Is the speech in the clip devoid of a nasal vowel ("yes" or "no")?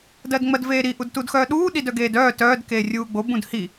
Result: no